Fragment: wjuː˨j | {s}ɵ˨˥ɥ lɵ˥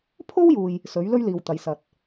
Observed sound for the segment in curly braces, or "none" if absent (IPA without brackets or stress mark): s